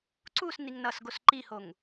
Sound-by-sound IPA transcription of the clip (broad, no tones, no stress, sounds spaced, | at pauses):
ǀ u s n i ŋ n ʌ s ɡ o s ǃ i h o ŋ